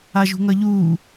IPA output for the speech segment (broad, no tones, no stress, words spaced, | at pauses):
aʒṳŋʌʎuː